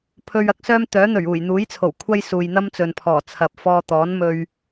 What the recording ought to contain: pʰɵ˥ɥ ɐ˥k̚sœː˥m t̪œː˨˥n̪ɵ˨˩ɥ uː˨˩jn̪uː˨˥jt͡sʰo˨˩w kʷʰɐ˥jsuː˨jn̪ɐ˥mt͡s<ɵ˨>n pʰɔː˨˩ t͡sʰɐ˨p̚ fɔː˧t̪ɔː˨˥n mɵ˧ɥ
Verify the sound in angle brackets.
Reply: correct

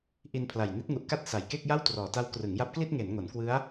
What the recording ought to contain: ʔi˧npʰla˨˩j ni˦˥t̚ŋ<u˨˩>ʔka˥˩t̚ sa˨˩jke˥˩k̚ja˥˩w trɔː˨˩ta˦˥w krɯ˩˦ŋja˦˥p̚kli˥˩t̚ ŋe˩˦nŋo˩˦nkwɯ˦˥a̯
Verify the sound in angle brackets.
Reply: correct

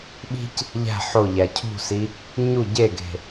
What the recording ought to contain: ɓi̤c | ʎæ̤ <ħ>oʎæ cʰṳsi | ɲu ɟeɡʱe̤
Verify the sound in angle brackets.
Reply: correct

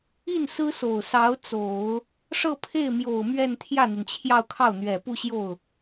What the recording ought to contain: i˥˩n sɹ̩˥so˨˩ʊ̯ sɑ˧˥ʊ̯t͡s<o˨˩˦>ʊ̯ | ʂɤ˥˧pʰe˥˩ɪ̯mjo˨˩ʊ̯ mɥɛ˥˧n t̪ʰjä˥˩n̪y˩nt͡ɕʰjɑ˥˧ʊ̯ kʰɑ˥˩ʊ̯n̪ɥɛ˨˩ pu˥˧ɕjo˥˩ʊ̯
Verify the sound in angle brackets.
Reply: correct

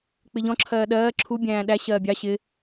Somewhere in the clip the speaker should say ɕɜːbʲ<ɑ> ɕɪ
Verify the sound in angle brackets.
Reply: correct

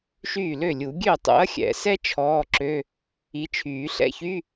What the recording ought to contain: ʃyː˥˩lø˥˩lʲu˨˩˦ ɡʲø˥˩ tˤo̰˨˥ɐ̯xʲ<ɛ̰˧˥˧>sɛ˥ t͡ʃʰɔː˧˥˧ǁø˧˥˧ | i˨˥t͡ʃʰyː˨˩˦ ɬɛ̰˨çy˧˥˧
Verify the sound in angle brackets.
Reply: incorrect: ɛ̰˨˩˦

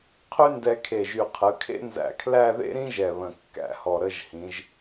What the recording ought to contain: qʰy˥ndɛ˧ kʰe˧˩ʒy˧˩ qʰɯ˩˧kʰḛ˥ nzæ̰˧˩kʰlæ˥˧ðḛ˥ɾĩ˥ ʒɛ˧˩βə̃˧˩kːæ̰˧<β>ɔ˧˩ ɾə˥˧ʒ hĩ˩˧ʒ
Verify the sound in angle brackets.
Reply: incorrect: h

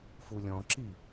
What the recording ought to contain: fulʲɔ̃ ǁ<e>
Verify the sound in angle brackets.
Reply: incorrect: i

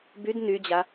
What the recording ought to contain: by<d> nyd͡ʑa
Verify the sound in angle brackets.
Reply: correct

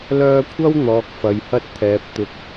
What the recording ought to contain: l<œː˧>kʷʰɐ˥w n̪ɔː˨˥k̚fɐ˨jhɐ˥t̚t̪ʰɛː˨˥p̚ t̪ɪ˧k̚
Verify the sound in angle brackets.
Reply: correct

